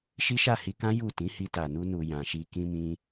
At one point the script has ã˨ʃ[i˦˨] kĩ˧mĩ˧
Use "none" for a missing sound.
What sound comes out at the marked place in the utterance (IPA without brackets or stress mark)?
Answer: i˧